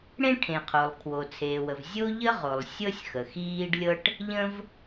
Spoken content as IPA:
ɽ ẽ˥ ʈʰ ẽ˩ qʰ o˩ lˠ kʰ w o˩ t͡sʰ eː˩ w ə˩ v zʲ o˥ ʎ ə˥ ʁ o˩ lˠ sʲ ɤ˥ sʲ x ə˩ x iː˥ ɖ lʲ ɤ˥ ʈ | ʎ ə̃˥ v

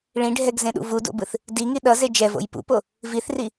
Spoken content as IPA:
ɭ ĩ ɖʱ ɛ ɡ z ẽ ɗ ṵ v u d o̰ b ɯ θ | d i ŋ i ɗ ʌ z e d͡ʒ ɛ v o̰ j p ṵ p o | v i θ r i

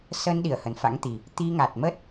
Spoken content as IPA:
s ə˧ n ɗ i˧˩ ə̯ h ə˨˩ n f a̰˧˥ ŋ t̪ i˨˩ | t̪ i˧ ŋ a˨˩ t̚ m ə˦˥ t̚

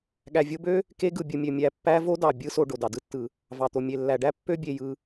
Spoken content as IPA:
ɠ æ˨ vʲ o˦ b ø˥ | k e˦ ɡ ɯ˩ bʲ ɯ˨ mʲ ø˩ mʲ æ˨ pː æ˦ v o˥ d ɑ˩ bʲ ɯ˦ s o˨ ɖ o˩ d ɑ˩ d ɯ˦ tː ɯ˩ | v ɑ˩ t̪ o˩ mʲ e˩ lː æ˩ ɖ æ˥ pː ø˥ bʲ e˨ j ɯ˨

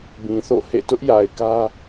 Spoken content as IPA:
b ĩ˨ θ o̰˦˨ h ḛ˦˨ t ʊ˦ ʔ j a˨ ɪ̯ k ä˦

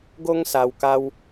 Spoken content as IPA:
ɡ o˦ ŋ s a˧ w k a˦ w

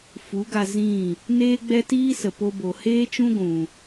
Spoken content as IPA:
f u˨˦ ɡ a˧ z ĩ˦˨ | n eː˦ ɡ͡b ɛ˦ t iː˦ s ə˨ p o˧ b o˨ h eː˦ t͡ʃ ũ˦ ɡʷ ũ˨

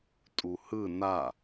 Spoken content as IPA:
tʼ u h ɯ n a

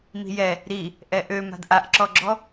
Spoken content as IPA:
m i̤ j ɛ | ɾ i | ʔ ɛ ʔ ø m a̤ d ʔ a ʔ ǁ ɔ ɡ͡ǁ ɔ

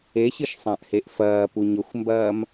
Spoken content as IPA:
e ɕ ɨ ʃ sˤ ã ʔ h e ʔ f ɐː p u ɲ ɵ xʷ m b ɐː m

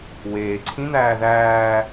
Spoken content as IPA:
w eː ǀʰ ĩ n̪ æː ð æː

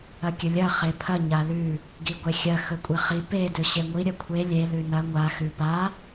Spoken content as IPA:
ɐ kʲ ɵ lʲ ɐ χ e pʰ ɐ ɲ a l ʉ | ɡ i ɡʷ e xʲ ɐ x ɵ kʷʼ e χ i p e d ʉ ɕ e ŋʷ i ɾʲ ɐ kʷʰ e lʲ e l ʉ n ɐ ŋʷ a x ʉ p a

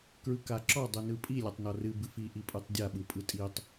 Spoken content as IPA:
k ɹ ɯ k a ǁ ɔ dˤ ɯ n ɯ pʼ i lʲ a tˤ n ɔ r ɨ b ɨ f i ʔ i pʼ ɯ tˤ dʲ a ɓ ɯ pʼ ɯ tʼ i tˤ

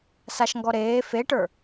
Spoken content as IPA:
s a ʃ ŋ ɡ ɔ ɾ eː f e ʈ ə˞

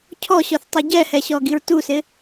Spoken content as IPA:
cʰ ɔ ɕ ɔ θ tˤ i ɟ ɛ h ɛ ɕ ɔ ɡ i ɹ t u s ɪ

